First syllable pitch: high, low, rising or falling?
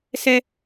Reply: high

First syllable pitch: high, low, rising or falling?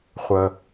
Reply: low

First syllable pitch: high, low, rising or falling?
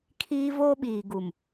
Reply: high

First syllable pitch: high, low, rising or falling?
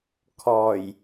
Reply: low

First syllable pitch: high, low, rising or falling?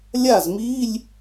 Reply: falling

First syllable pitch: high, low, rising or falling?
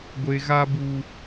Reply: low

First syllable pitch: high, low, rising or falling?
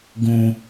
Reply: low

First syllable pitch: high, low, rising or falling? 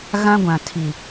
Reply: high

